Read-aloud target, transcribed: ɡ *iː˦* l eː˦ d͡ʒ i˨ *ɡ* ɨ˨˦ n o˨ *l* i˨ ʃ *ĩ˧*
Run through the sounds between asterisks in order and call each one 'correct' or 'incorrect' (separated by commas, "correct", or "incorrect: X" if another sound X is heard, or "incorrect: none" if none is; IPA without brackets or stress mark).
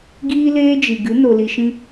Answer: correct, correct, correct, correct